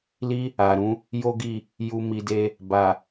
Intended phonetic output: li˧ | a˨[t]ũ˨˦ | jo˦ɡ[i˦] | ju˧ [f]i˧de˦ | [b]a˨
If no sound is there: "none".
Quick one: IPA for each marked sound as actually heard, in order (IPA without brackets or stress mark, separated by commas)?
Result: ɾ, i˦˨, m, b